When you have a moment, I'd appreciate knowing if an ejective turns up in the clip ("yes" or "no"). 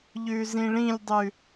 no